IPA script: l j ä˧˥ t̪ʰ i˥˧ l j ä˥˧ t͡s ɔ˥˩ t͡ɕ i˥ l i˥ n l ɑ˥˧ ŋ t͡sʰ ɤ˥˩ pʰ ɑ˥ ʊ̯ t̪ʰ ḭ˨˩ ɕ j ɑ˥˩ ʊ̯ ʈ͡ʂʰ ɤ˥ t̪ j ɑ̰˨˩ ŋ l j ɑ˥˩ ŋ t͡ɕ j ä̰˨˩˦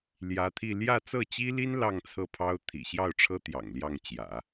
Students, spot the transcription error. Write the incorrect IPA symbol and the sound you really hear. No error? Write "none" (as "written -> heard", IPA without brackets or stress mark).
ɔ˥˩ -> ɤ˥˩